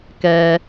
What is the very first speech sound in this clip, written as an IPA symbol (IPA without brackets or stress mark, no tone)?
k